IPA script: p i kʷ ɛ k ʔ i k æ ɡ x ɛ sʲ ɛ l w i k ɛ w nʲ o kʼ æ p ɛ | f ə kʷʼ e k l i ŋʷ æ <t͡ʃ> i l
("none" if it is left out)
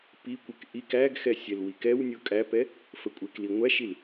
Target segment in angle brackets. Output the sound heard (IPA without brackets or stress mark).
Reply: ʃ